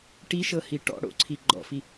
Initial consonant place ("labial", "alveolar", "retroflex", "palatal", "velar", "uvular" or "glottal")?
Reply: retroflex